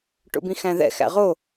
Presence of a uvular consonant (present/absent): present